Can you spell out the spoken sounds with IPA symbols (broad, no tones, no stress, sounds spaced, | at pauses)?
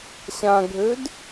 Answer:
ɕ ã ɡʱ ø d